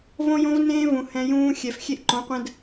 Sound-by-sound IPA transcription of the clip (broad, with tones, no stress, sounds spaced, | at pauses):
v õ˦ j õ˦ v n ẽː˦ v ũ˨ h ɛ̃˦ j ũː˦ xʲ ɛ˨ f xʲ e˦ ʔ ǃ õ˨˦ qʷ ɛ̃˦ d